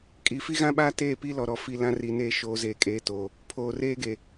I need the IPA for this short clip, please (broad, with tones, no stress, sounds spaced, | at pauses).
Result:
kʼ i˨ f i˦ ɣ ã˦ ɓ aː˦ t eː˦˨ p i˦ l ɔ˨ ɾ ɔ˨ f i˨ l ã˦ r i˨ n eː˦ ʃ oː˨ z eː˨ kʼ eː˨ t o˨ | pʰ oː˨ r eː˦ ɡ e˨